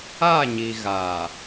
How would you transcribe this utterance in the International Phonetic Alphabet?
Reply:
a˦˨ ɲ i˨ ɣ a˨

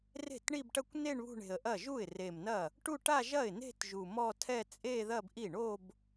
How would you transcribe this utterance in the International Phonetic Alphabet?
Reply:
r e̤˥˩ t ɳ i˥˧ b ʈ ɐ˥˧ kʷ n e˥˧ ɳ β ṳ˥˧ ɳ e̤˨˩ ə̯ ʔ ɐ˥˩ ʒ u˥˩ ɪ̯ r e˨˩ m n ɐ˥˩ | ʈ u˥˧ ʈ a˥˧ ʒ ɐ˥˩ ɪ̯ n e̤˥˧ t ʒ u˨˩ m ɔ˥˧ tʰ ɛ˥˧ t͡sʼ e˥˧ ð ɐ˥˧ b ʔ i˥˩ ɳ o˥˧ b

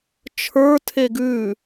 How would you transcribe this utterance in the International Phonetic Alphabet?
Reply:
t͡ʃʰ ə˞ tʰ e ɡ ʉ

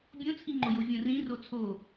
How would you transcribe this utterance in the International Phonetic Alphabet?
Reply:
bʲ õ t͡sʰ i ŋ͡ǃ o j o vʲ õ r ĩ r o t͡sʰ o

